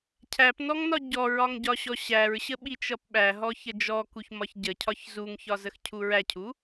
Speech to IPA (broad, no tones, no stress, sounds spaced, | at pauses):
cʰ æ p n ɔ ŋ n ɒ ɟ ɔ ɹ ɒ ŋ ɟ ɒ ɕ ɔ ɕ æ ɹ ɕ ə ɓ i t͡ʃ ʌ p ɓ æ ɦ ɔ ç ə d͡ʒ ɔ k u ç m ɒ ç ɟ ə cʰ ɒ ç z u ŋ ç ɒ z ə x cʰ u ɹ æ cʰ u